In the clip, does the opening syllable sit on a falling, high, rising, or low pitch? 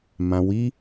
low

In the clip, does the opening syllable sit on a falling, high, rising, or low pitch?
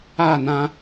falling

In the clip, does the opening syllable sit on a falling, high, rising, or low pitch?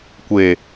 low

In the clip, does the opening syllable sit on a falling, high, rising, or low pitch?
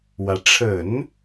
rising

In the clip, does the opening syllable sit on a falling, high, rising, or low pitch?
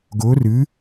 rising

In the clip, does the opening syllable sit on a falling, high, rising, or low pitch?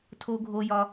high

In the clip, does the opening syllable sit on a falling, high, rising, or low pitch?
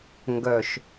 low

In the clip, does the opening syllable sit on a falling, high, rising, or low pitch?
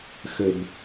low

